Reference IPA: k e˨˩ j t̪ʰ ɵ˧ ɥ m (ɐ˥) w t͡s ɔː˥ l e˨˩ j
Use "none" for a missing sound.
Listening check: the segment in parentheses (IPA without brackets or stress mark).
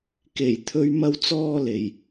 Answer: ɐ˥